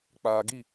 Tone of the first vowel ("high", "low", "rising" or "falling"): low